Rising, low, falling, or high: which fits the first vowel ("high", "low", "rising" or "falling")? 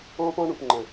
high